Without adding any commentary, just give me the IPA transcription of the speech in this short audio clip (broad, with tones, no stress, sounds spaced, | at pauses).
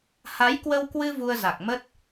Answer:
h a˨˦ j k w ə˧ w k w ɨ˧ v u˧ ə̯ z a˨˩ k̚ m ə˦˥ t̚